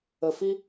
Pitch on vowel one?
low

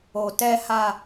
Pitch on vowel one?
low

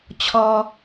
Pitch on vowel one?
low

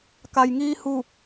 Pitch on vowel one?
low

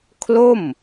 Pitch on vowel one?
falling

